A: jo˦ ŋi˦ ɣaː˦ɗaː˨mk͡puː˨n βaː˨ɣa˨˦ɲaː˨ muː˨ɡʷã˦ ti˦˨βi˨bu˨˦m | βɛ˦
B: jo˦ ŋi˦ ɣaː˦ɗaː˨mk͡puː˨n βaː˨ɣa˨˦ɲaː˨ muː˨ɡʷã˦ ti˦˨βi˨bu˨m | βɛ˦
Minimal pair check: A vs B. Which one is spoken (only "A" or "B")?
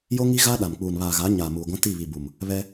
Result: B